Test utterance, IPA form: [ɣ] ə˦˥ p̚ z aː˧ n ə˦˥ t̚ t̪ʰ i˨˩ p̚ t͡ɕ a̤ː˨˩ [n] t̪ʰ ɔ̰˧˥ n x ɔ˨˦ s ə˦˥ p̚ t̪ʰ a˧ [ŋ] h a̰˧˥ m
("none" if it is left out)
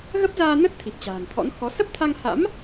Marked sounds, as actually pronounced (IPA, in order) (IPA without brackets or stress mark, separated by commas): ɣ, n, ŋ